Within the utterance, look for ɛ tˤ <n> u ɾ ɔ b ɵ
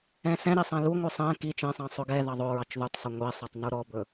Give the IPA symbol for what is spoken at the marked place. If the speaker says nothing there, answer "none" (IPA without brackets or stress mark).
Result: n